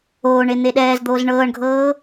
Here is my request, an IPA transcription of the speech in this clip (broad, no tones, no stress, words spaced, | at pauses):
oːɳe n̪eɗɛːzd̪oːz ɳɤːɳɡʱɤː